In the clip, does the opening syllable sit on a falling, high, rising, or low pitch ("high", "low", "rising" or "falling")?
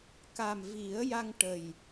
low